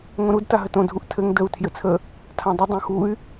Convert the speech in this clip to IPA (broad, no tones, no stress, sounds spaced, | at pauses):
ŋ õ ɾ u d t a ɦ ə t õ dʱ u ʔ tʰ ɘ ŋ d ə u̯ tʰ j ɘ t͡sʰ ə | tʰ ã dˤ ə dˤ õ x u y̯